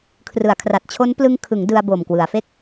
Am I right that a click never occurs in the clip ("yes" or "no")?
yes